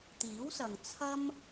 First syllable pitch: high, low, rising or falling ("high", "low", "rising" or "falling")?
rising